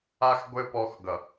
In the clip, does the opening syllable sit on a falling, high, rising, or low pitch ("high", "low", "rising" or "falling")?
high